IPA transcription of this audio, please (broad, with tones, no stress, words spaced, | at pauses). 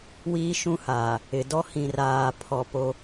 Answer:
wiː˦ʃũ˦haː˨ | ɪ˨dɔ˦hĩ˨ raː˨pʰɔ˨ po˦